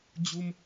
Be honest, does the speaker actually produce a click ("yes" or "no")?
no